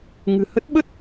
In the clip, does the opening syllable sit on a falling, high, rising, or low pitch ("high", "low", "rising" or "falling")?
low